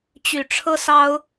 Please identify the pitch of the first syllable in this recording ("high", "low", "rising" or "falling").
low